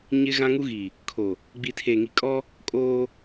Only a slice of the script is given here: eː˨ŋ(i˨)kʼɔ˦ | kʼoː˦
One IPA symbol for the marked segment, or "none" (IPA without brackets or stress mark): i˨